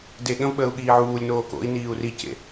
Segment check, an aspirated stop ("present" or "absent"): absent